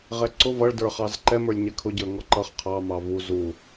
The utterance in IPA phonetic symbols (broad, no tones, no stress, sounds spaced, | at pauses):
ʁ ɛ ǀ ʊ v ʌ ɭ d ə˞ χ ɑ z ǃ ɛ m ə˞ lʲ ɲ ɛ kʰ ʊ ɟ ə˞ ŋ ɔ ǃ ʌ χ qʰ ɑ m ɑ v u z u